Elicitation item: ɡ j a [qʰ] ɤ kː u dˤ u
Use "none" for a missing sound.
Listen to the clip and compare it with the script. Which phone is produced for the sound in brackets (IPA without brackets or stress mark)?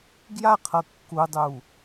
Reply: qʰ